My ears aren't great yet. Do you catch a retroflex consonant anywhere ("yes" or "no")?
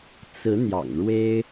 yes